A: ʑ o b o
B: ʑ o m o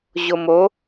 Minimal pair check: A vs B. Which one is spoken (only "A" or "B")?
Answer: B